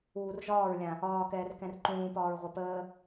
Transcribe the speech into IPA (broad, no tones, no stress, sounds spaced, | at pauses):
uː r ʒ ɒː ɹ lʲ ã | ɒː k ɛː r k ɛ̃ r ǃ ũː p ɒː ɹ ʁʷ ɐ p əː